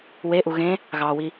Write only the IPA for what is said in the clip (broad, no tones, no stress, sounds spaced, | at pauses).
w e ʔ u ɣ ẽ | ɣ ɑ w i